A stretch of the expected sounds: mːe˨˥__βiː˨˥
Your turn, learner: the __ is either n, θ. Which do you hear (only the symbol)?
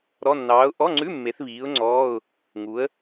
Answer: θ